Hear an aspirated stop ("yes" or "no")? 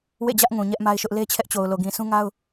yes